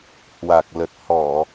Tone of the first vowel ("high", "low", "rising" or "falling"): low